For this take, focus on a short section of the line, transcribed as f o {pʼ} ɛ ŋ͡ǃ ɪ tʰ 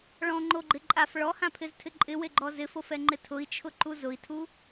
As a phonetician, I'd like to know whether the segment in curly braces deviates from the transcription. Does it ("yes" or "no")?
yes